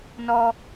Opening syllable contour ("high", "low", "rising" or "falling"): high